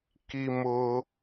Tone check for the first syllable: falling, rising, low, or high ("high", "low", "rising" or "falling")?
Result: high